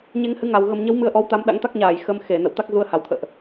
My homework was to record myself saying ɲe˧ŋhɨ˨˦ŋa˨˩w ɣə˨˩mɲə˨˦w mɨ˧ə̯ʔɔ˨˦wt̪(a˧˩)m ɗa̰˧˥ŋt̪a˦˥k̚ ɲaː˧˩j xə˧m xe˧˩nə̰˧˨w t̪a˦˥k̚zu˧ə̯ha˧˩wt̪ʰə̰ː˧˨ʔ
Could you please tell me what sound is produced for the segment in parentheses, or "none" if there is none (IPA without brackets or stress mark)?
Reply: a˨˦